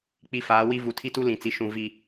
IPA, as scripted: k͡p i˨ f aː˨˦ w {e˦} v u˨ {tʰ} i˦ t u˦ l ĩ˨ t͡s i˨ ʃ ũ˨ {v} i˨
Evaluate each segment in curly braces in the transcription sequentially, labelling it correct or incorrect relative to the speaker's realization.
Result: incorrect: i˦, correct, correct

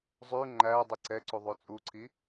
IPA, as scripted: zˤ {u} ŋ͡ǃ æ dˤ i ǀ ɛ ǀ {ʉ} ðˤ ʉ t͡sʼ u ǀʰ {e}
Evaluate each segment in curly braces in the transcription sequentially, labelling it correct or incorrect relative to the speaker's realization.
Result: incorrect: ʉ, incorrect: u, incorrect: i

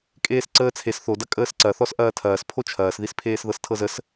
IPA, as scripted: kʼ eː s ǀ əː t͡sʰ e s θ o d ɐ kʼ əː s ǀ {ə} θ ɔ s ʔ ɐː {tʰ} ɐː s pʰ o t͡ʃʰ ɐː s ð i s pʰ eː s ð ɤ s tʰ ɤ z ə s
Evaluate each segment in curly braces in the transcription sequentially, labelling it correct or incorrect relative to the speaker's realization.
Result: incorrect: ɐ, correct

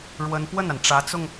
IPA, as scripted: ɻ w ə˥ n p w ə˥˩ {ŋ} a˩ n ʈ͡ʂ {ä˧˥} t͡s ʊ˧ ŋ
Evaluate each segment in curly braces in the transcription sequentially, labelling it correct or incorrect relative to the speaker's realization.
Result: incorrect: n, correct

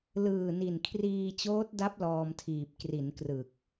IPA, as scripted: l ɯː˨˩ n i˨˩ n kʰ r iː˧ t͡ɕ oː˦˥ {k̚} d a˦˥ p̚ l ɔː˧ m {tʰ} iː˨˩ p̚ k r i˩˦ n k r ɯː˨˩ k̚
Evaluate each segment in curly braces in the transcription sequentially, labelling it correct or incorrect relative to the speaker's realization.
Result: incorrect: t̚, correct

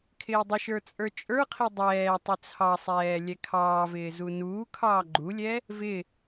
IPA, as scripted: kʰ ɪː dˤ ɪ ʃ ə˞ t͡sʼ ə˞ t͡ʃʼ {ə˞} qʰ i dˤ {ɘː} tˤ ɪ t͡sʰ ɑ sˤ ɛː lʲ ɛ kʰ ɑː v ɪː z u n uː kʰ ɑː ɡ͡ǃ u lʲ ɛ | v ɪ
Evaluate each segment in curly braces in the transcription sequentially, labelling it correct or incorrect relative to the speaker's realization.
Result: correct, incorrect: ɛː

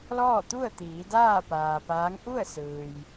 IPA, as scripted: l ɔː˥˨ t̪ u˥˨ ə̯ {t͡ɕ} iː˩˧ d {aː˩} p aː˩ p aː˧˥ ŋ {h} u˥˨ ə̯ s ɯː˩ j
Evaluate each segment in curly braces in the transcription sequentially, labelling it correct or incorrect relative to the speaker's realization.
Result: incorrect: t̪, incorrect: aː˥˨, incorrect: ʔ

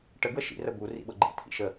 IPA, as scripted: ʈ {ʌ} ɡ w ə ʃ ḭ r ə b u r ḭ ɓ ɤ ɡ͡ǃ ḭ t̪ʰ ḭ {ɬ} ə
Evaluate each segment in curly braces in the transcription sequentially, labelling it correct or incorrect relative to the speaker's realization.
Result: incorrect: ə, incorrect: ʃ

